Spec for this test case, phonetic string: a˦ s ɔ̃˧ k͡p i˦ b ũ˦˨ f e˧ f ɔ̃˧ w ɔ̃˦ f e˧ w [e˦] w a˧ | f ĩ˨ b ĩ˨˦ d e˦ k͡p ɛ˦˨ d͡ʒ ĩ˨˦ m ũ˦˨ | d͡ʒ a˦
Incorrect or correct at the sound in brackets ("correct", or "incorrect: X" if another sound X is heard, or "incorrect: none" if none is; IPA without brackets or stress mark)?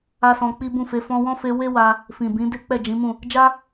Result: correct